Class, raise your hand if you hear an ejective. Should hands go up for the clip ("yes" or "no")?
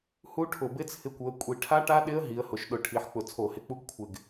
yes